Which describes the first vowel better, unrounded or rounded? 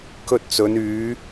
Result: rounded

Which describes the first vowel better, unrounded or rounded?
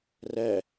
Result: unrounded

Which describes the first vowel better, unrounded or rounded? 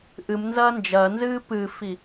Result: unrounded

